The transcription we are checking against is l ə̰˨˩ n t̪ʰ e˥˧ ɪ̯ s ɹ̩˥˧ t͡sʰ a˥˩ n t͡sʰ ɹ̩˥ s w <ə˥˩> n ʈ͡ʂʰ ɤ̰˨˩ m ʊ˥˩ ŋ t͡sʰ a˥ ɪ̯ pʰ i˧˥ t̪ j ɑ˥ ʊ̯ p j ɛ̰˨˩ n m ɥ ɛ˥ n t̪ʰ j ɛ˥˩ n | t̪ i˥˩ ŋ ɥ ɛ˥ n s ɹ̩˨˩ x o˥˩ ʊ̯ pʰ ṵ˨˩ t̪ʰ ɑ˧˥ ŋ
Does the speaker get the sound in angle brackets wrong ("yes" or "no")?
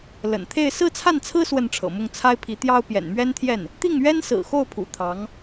no